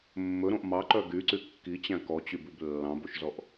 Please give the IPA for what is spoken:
mː ɵ ɾ õ ʔ m ɑ ǃ œ ɡ y ǀ y kː i t͡ɕ æ̃ k ɔ t͡ɕ y b ʉ b lː ɑ̃ b o ʃ z ɔ ʔ

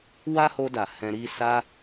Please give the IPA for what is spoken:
w a˦ h o˧ d a˨ h ɛ̃˧ ɾ i˦ s a˦

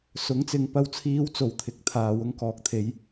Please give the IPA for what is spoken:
s ʊ˨˥ ŋ t͡s ɪ˨ ŋ p ɐ˧ w t͡sʰ iː˨˧ w t͡s o˨˩ w t̪ʰ ɪ˨˥ k̚ t̪ʰ aː˨ w ʊ˧ ŋ k ɔː˨ k̚ t̪ʰ e˨˧ j

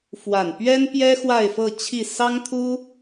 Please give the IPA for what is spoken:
f w a˨˩ n p ɥ ɛ˥ n p j ɛ˥ x w a˥˧ ɪ̯ f ɤ˥˧ t͡ɕʰ i˥˩ s ɑ˥ ŋ t̪ʰ u˥

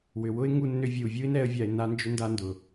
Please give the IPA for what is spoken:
w ʏ˩ w ʊ˥ ɪ̯ ŋ u˧ nː ʏ˧ vʲ u˩ vʲ u˥ ɪ̯ n ɛ˥ ə̯ vʲ a˧ ɪ̯ n a˥ n d͡ʒ ʏ˥ n d a˥ n d ʊ˩

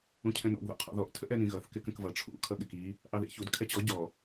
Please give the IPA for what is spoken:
ũ cʰ ɛ̃ n ɔ̰ ɡ ð ɔ̰ qʰ ɔ̰ ð ɔ ʔ tʰ ə ʔ ɛ n ĩ ɣ ʌ θ k ɪ k ə̃ k v ʌ ʈ͡ʂʰ ṵ kʰ ʌ ɠ ɪ k i | ʔ ɑ ð ḭ ç u d kʰ ɛ t͡ɕ ɔ ɟ ɔ

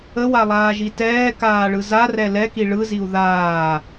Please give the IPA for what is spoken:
ə w a lˠ aː ʒ i t ɛː k aː ɭ ɯ z a r ɛ l ɛ k i ɭ ɯ z i u̯ ð aː

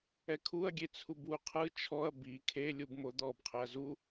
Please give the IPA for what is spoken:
ɛ kʰ u ɐ̯ ɡʲ e t͡sʰ u b w u qʰ ɯ t͡ʃʰ ɔ ɐ̯ b i kʰ e lʲ u b m o d̪ ɔ b qʰ ɛ ɐ̯ z u

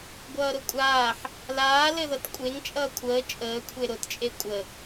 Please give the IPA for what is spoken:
ɡʷ ʌː ɾ ʊ kʷʼ aː ħ | l aː l ɘ ð ʌ t kʷʼ e ŋ t͡ʃʼ ʌː kʷʰ əː t͡ʃʼ əː kʷʰ e ɾ ʊ t t͡ʃʼ e kʷʼ ə

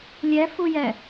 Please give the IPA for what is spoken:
lʲ ɛ f u j ɛ

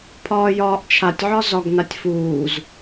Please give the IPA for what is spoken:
pʰ ɒː j ɒː ʔ t͡ʃʰ a tʲ ʕ ɒ z ɒ ɡ n a tʲ f uː z

